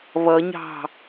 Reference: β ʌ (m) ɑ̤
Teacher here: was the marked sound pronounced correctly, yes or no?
no